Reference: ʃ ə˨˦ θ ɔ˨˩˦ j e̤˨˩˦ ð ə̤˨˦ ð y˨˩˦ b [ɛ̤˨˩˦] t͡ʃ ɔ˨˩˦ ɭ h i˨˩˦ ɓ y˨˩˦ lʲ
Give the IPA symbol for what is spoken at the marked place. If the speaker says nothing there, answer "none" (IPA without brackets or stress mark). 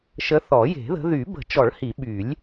ə̤˨˩˦